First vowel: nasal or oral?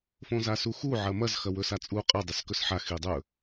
nasal